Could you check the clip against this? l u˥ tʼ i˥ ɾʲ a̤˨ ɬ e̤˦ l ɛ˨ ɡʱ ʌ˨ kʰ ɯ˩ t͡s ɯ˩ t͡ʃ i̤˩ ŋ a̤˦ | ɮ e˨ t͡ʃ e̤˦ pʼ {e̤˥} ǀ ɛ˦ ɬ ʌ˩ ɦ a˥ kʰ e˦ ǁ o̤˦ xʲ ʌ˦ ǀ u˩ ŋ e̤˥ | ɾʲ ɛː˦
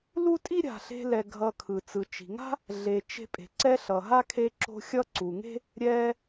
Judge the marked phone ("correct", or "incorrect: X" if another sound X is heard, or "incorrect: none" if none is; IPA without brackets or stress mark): incorrect: e̤˩